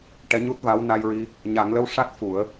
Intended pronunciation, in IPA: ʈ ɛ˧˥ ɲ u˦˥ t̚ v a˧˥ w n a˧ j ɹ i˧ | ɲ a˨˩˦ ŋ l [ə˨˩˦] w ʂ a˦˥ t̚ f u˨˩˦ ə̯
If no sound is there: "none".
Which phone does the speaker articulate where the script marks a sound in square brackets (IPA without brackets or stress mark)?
ə˧˥